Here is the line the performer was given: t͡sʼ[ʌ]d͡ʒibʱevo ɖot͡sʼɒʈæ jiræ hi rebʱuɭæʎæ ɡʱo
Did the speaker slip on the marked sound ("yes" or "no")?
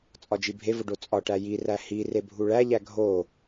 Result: yes